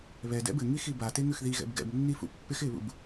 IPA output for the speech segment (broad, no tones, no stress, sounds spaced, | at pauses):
β ɛ d ɛ̰ b ɘ ŋ i x i b a t e ŋ ʉ x ð i ɣ ɛ̰ b ɡ ɛ̰ b nː i f ṵ pː ɪ x ɪ β ṵ b